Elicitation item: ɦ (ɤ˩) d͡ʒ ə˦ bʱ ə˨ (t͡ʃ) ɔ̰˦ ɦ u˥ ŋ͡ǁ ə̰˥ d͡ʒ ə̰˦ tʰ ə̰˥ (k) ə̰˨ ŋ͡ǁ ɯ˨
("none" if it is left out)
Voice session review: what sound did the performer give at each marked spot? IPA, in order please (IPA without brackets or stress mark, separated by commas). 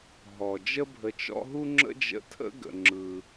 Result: ɔ˩, t͡ʃ, ɡ